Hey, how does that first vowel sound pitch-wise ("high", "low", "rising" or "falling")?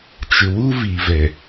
low